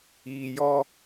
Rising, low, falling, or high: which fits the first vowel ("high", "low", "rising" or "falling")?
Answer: low